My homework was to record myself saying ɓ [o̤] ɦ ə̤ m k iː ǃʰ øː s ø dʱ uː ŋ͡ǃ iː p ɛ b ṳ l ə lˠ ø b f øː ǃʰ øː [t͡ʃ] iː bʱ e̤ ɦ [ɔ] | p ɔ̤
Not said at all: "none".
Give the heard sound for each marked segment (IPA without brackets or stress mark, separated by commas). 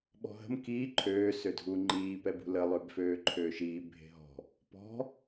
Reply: ɔ̤, ʃ, ɔ̤